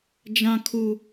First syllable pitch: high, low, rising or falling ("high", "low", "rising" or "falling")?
high